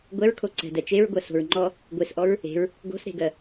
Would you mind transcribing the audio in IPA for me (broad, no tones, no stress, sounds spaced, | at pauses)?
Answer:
ɡʷ ɛ ɹ kʰ o ǀ ɛ̤ d ɛ t͡ʃ e ɹ ɡʷ ɜ s o̤ ɹ ŋ͡ǃ ɔ | ɡʷ e s ʔ ɔ ɹ | e̤ ɹ | ɡ o̤ s ɾ e̤ ɡ ɜ